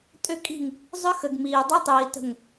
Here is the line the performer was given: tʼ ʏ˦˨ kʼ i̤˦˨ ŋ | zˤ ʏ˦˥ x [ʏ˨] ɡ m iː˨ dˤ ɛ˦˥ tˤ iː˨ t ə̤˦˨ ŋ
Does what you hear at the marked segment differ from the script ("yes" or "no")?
yes